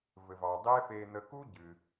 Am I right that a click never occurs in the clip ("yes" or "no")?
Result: yes